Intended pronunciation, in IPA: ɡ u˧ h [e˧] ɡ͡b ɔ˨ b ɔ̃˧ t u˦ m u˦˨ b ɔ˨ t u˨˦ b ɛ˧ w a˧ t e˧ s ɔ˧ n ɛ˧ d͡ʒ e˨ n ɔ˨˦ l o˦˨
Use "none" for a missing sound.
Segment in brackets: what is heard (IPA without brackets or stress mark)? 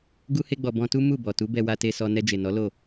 e˧